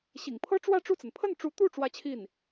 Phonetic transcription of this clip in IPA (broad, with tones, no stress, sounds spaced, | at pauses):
ɕ ḭ˨˩ ŋ pʰ ɤ˥ ʈ͡ʂ w ä˥˧ ʈ͡ʂ u˥˩ t͡s ə˩ n pʰ ə˥˩ n ʈ͡ʂ u˧˥ t̪ u˥˩ ʈ͡ʂ w ä˥ t͡ɕʰ i˥˩ n